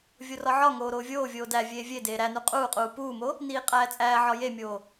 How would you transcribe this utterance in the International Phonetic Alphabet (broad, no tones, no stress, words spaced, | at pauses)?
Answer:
vʲorɒʕɒŋoː ɾoːvʲoːvʲoː dæ vʲeːvʲedeː ɾænu qʼuːqʼuː puːmo | niːqʼæːt͡sʼæːʕɒ jemʲoː